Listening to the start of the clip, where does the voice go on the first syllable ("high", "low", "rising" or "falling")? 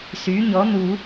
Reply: rising